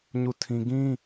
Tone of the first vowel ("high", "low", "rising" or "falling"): falling